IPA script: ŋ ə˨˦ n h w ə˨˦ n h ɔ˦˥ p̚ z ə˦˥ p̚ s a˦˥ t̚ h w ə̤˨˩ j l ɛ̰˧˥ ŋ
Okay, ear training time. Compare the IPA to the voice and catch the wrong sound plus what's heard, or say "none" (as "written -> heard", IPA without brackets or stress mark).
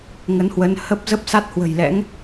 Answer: ɔ˦˥ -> ə˦˥